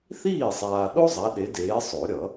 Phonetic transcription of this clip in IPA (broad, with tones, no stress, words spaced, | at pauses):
θiː˥˩sˤaː˨ɗo˥ zˤa˨˦ɗe˨˦deː˨˦ sˤo˨˩˦ɾʲʌ˨˩˦